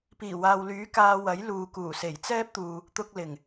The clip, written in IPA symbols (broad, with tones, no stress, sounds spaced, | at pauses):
p iː˨˩ w aː˨ w l yː˨˥ k aː˧ w ɐ˨˥ j l uː˨ k uː˨˩ s e˨˩ j t͡s ɛː˥ p̚ t̪ uː˨ | t̪ ʊ˧ k̚ l ɪ˨˩ ŋ